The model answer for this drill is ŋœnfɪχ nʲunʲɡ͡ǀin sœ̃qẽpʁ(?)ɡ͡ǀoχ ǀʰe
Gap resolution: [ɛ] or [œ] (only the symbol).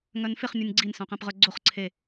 œ